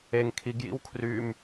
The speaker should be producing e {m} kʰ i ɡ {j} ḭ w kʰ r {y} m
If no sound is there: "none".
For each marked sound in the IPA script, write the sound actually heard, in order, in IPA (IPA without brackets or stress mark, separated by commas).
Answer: ŋ, j, y